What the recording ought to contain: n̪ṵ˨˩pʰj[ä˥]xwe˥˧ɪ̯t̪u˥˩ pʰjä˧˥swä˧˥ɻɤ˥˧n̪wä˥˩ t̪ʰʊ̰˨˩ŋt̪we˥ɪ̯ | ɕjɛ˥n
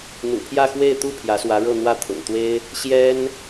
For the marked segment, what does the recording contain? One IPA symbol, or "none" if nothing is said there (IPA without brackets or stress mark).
ä˥˧